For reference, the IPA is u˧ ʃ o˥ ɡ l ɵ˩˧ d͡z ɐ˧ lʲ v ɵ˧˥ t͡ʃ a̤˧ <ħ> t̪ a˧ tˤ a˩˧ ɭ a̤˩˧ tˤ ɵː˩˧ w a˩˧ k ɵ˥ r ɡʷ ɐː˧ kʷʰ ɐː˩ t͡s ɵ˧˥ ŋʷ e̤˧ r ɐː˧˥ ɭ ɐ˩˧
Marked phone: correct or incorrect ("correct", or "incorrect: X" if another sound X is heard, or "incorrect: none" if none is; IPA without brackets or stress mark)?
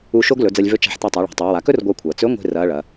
correct